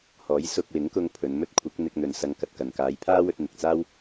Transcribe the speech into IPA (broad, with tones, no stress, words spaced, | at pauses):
hɔː˨˥jsʊ˧k̚wɪ˨˥ŋkʊ˧ŋ pʰɵ˨˧nmɵ˥t̚ kʷʰɪ˨˥k̚n̪ɪ˧k̚n̪ɵ˨n sɐ˧ŋkɐ˨t̚kɐ˨n kaː˨˧jpʰaː˥wɵ˧t̚ n̪ɪ˨k̚t͡saː˥w